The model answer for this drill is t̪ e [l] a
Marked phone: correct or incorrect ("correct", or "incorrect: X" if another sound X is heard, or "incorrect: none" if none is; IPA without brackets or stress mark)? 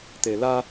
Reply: correct